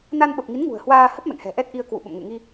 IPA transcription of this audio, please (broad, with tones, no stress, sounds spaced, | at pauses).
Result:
n a˧ n ɓ ə˨˩ p̚ ŋ i˨˦ n ŋ ṳ˨˩ ə̯ h w aː˧ h ə˦˥ p̚ m ɛ̰˧˨ ŋ h ɛ̤˨˩ ʔ ɛ˦˥ t̚ ʔ i˧ ə̯ k w ṵ˧˨ ɓ ə̰˧˨ m ŋ ḛ˧˨ ŋ i˧